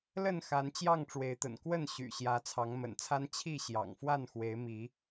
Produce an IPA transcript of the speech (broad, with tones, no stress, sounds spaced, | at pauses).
l ə˥˨ n x a˨˦ n t͡ɕ j ɑ˥˨ ŋ ʈ͡ʂ w e˨˦ ɪ̯ t̪ ə̰˨˩ n k w ə˥˨ n ɕ y̰˨˩ ɕ j ä˨˦ t͡sʰ ɑ˨˦ ŋ m ə̰˨˩ n t͡sʰ a˦ n t͡ɕʰ i˥˨ ɕ j ɑ̰˨˩ ŋ f w a˥˨ n x w e˨˦ ɪ̯ m i˨˦